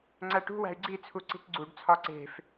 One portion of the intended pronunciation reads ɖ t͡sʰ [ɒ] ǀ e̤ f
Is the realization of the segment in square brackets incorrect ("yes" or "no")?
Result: no